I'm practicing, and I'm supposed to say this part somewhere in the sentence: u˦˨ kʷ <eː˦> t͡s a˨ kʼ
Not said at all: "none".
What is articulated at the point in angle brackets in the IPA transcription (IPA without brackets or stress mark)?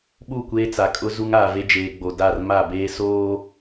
eː˦